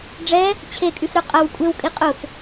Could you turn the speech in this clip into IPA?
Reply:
ɖ͡ʐɛ | t͡ɕʰekʼyfɾœ qʼɐw kʷʼewkʼi qʼʊf

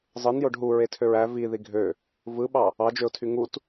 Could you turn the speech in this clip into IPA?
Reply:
zˤɯn joɖɦu ɹetʰøɹæ vi ðiɡʱø | vɯɓɑ | ɑd͡ʒøʊ̯tʰy ŋut

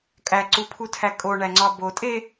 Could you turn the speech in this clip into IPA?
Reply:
kʼæǀupʰutʰæ kʼoɳæŋ͡ǀɒ botʼe

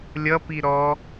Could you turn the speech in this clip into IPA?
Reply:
lʲʌpi ɾɔ

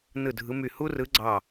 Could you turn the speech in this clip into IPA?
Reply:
nɯ˧˩dʱɯ˨˦my˧˩ hu˦rɯ˨˦ ɡ͡ǀɑ˧˩

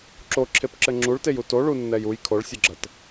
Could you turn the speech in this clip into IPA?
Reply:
ǁoǁʰepǁɘ ŋ͡ǁuɭteju toɭunːɛj uj kʰoɭsʲɘɡ͡ǁɐt

